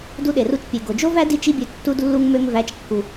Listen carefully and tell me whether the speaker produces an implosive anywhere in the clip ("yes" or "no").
yes